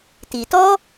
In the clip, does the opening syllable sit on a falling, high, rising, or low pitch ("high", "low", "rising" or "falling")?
low